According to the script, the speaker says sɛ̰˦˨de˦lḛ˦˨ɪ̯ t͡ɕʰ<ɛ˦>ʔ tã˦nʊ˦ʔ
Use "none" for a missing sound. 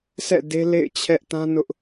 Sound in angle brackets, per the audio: ɛ˦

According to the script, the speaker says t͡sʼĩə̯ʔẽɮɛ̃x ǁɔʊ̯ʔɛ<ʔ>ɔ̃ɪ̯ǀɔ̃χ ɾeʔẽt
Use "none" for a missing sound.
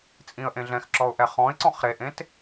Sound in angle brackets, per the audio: χ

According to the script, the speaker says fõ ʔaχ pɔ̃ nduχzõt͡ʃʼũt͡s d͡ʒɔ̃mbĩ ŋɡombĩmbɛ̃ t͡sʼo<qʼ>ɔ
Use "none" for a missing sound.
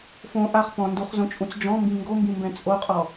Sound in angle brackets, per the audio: qʼ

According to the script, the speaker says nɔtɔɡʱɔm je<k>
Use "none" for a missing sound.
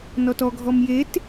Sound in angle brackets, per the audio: t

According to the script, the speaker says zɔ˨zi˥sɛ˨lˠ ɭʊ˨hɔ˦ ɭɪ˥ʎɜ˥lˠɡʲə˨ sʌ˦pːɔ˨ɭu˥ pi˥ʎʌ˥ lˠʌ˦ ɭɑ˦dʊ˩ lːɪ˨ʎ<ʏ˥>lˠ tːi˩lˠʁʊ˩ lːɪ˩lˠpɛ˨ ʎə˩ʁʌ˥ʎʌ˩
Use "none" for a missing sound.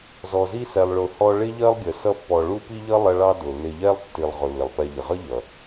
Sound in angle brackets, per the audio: ɛ˥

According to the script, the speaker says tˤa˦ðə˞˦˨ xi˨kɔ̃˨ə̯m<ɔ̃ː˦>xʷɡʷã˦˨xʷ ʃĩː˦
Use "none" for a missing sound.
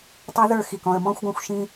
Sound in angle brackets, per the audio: ɔ̃ː˦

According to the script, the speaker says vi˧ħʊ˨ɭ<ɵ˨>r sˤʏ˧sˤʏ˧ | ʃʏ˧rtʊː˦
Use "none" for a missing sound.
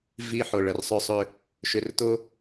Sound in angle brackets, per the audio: ə˨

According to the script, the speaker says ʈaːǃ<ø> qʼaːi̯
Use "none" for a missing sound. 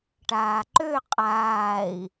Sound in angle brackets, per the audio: ø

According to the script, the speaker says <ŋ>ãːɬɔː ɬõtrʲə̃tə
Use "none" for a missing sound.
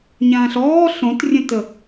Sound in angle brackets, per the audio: ɲ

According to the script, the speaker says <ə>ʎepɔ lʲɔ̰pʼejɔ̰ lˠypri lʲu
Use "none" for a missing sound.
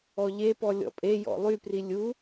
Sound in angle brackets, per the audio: ɔ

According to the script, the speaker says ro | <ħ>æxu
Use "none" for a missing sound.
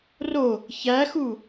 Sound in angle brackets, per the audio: ç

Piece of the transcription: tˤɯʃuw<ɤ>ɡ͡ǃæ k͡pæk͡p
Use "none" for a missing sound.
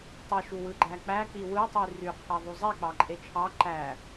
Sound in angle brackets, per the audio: ɯ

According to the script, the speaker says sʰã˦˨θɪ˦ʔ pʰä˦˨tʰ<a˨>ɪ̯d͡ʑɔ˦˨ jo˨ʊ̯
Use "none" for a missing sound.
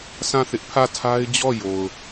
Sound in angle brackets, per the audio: a˦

